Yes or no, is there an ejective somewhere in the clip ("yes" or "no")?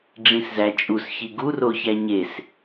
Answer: yes